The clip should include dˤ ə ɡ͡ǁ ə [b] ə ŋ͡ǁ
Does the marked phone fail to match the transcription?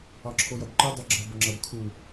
no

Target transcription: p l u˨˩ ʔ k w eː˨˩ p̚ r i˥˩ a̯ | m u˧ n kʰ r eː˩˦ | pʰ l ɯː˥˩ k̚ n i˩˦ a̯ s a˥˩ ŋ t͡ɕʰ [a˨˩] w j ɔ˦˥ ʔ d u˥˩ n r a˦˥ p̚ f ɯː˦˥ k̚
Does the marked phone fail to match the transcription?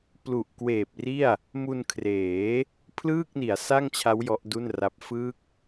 yes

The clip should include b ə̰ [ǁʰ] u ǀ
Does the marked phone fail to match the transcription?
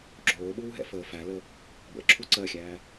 no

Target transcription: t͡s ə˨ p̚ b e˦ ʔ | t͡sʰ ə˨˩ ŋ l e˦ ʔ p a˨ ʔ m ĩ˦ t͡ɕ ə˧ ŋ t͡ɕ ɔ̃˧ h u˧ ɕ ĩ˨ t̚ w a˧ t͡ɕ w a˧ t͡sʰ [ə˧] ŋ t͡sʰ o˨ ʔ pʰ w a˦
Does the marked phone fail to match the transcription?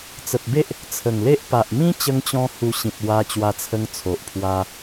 no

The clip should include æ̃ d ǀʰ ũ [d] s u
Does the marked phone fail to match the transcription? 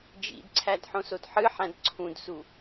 no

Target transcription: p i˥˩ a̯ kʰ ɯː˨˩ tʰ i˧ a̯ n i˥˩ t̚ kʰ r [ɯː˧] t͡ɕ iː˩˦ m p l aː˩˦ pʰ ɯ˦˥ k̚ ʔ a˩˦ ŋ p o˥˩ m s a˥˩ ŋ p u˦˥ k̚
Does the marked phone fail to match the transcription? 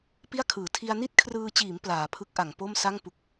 no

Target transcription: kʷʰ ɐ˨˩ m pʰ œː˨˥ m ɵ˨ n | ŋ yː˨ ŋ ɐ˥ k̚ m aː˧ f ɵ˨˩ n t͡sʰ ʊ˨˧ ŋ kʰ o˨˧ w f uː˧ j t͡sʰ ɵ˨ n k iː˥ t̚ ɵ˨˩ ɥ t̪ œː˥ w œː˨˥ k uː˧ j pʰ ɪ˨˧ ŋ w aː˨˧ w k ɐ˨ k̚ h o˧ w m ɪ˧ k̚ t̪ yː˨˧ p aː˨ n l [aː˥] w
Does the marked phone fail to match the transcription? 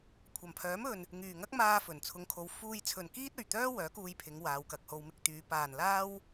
no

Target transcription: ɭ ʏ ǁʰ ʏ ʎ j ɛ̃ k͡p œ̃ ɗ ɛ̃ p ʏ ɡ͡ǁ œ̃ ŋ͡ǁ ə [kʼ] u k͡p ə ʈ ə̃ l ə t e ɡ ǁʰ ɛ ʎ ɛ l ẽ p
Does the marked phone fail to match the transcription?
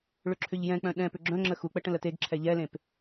yes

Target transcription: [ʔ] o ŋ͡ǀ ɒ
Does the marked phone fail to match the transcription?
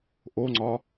no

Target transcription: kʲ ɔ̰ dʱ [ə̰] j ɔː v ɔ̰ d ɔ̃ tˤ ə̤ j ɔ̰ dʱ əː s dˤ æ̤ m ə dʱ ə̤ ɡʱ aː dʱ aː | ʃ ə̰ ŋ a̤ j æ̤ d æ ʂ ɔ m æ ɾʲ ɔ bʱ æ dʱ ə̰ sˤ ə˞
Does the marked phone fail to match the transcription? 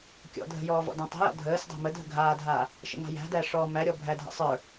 yes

